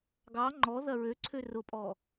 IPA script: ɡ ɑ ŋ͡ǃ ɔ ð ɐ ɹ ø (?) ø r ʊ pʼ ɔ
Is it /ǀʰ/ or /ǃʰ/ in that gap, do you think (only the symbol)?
ǀʰ